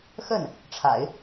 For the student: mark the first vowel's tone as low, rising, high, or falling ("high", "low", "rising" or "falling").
falling